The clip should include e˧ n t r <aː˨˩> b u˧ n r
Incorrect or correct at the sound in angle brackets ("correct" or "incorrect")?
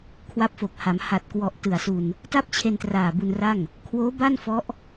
correct